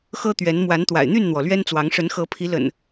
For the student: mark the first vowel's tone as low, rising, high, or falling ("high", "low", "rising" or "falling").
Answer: high